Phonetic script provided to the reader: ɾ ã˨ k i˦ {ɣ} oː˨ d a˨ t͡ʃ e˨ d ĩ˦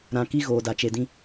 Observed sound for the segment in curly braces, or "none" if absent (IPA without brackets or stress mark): ɣ